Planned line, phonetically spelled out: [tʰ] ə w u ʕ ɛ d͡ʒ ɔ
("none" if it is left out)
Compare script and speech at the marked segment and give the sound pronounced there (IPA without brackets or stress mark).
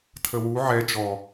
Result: tʰ